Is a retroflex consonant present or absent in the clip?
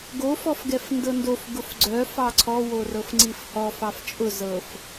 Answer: absent